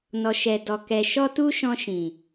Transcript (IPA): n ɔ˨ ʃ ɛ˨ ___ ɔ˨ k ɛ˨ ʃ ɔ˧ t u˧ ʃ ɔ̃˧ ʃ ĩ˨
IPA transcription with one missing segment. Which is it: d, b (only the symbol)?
d